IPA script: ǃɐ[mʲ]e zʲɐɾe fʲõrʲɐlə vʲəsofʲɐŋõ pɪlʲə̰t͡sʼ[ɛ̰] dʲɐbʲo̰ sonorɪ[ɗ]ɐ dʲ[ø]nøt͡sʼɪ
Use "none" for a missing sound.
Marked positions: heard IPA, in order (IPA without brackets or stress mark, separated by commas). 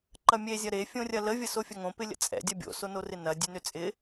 mʲ, ɛ̰, n, ø